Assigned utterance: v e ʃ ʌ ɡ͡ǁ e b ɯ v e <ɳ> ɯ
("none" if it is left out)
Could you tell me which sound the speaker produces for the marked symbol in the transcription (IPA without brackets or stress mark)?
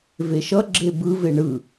ɳ